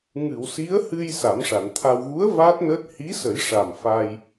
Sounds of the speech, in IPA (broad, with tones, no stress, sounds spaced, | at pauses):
ŋ ɨ˨˩˨ w s i˧˥ ə̯ h ɨ˧ j s a˨˩˦ m ʂ a˨˩˨ n t̪ʰ a˧ w ɣ u˧˥ ə̯ v aː˦˥ t̚ n əː˦˥ t̚ h i˧˥ s ə˨˩˦ j ʂ a˨˩ m f a˧ j